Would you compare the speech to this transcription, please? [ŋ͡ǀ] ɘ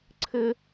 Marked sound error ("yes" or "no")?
yes